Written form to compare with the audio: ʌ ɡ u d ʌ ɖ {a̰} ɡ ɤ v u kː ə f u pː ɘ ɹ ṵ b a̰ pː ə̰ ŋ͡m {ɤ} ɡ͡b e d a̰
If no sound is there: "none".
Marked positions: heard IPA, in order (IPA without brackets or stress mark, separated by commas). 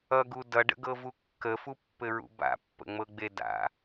ə̰, ɤ